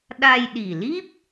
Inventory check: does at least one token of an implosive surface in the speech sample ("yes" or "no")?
yes